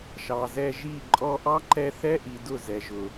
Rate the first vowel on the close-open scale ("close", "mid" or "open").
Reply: open